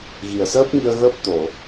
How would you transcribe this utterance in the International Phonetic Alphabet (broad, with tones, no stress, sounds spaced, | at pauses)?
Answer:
ɣ i˨˩ ə̯ s əː˦˥ p̚ ŋ i˧ ə̯ ɣ əː˦˥ p̚ t̪ o˨˩˨